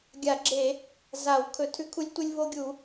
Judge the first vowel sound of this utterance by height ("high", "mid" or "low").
low